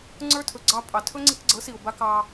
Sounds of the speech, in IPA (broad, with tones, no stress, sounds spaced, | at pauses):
ŋ͡ǀ ə˞˥ tʰ ɵ˩ ɡ͡ǀ ɑ˧ pʼ ɑ˩ tʰ ɵ˥ ŋ͡ǀ i˧ k ɡ͡ǀ ɤ˩˥ s i˩ ʊ̯ b a˧ k ɑ˧